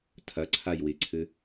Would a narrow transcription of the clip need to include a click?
yes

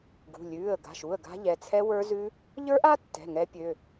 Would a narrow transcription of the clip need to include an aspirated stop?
yes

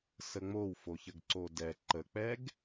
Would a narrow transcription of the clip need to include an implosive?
no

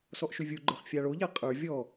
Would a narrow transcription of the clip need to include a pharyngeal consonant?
no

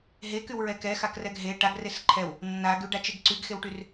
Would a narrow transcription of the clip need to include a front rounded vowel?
yes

